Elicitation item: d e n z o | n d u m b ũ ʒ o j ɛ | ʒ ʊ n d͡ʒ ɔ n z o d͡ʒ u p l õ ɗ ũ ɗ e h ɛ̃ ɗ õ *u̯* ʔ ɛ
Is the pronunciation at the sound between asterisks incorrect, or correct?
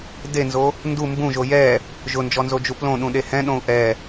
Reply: correct